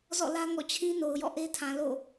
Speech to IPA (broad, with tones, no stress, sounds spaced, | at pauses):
z ɔ̰˦˨ l ä˦ ŋ ɔ̰˦˨ t͡ɕʰ ĩ˦ n o˨ ʊ̯ j ɔ̰˦˨ ʔ e˦ tʰ ã˨ l o̰˦˨